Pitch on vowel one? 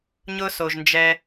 high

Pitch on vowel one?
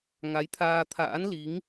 rising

